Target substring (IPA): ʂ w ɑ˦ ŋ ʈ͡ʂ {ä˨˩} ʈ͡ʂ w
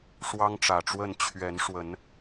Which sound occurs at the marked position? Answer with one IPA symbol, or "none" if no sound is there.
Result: ä˨˩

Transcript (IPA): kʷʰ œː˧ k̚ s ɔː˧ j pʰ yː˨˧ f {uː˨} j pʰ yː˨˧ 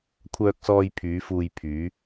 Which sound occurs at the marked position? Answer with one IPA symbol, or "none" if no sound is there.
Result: uː˧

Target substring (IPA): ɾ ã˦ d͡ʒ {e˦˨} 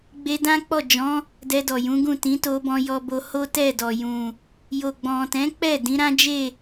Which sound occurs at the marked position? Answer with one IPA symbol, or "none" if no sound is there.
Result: e˦˨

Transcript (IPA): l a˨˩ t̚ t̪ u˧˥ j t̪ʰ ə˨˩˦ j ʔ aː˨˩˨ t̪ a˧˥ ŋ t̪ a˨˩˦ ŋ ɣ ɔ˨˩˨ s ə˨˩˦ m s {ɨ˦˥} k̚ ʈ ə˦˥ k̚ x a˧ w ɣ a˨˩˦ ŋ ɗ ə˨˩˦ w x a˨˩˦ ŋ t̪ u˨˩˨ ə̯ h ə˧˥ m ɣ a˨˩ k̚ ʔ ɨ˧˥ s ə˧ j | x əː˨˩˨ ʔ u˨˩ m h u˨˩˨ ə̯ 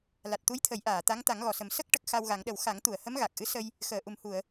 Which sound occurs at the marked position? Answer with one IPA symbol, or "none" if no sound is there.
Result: ə˦˥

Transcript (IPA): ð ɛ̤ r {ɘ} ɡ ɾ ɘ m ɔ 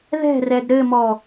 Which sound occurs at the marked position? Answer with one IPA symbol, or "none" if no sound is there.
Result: ɛ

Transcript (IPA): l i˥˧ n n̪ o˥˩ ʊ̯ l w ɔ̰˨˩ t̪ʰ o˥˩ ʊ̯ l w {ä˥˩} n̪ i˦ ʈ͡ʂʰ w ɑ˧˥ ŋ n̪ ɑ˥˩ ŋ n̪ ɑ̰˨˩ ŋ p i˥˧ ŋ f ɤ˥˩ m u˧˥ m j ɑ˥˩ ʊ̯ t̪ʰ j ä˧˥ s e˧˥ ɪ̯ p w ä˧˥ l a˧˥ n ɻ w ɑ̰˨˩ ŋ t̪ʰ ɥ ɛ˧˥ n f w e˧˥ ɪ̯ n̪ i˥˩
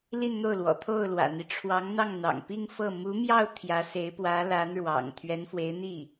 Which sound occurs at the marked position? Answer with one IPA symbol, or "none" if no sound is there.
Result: ä̰˨˩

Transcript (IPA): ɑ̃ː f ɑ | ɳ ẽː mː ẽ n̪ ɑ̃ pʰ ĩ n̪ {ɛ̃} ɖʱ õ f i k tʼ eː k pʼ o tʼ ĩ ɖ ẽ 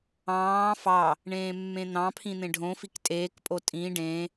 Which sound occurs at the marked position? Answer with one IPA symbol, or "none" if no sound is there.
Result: ẽ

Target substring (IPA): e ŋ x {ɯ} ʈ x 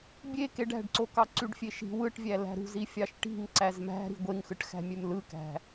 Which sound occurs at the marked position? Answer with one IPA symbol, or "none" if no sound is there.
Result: ɯ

